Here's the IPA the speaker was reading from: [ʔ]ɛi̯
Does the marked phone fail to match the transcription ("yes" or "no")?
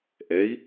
no